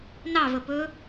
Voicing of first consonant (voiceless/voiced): voiced